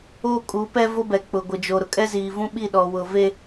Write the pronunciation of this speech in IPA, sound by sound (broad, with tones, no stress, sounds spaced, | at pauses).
oː˦ kʼ uː˨˦ p ɛ˦ v o˦ b ɛ˨ k͡p ʊ˨ ɡʷ ɪ˨ d͡ʒ o˨ ɾ ʊ˨ kʼ ɛ˦ z iː˨ v ũ˦ ɓ i˦˨ ɗ ɔ˨ w ʊ˨ v e˦